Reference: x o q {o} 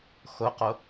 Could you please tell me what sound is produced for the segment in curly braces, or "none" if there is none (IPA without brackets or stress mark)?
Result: o